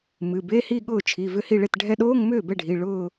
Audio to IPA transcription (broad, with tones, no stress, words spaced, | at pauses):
mɨ˩˧˩be˧˥˧hi˥˧ɠʊː˥˩ t͡ʃʰi˩˧˩ vʏ˥˩hi˥˩ɭe˥˩t ɖʱɛ˧ɗoː˧˥˧ŋ mʏː˥˩bɛ˥˩ɖʱi˩˧˩ ɭʊː˥˧